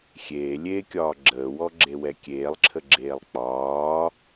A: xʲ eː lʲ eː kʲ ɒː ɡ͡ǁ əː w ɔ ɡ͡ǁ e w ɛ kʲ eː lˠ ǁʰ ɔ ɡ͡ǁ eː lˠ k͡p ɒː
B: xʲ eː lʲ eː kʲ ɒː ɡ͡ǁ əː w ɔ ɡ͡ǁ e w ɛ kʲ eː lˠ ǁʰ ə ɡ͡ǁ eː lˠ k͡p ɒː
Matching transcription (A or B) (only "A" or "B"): B